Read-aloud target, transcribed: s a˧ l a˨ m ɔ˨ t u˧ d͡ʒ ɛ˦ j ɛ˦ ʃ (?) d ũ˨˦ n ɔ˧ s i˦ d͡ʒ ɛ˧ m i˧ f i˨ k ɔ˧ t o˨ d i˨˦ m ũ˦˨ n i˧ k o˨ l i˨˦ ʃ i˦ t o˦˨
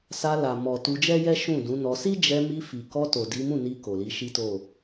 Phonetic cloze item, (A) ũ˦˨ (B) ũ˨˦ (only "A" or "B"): A